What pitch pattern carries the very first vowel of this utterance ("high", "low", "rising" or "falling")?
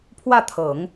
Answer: falling